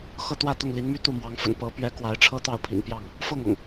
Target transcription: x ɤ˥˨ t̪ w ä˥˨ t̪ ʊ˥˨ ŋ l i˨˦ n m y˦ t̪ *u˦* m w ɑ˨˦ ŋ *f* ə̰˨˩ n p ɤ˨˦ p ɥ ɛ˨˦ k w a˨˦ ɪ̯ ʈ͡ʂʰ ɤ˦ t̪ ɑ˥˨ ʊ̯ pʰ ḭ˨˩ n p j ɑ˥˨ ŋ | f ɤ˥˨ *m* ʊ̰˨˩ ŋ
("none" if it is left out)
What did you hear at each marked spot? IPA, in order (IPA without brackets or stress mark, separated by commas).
u˥˨, f, ŋ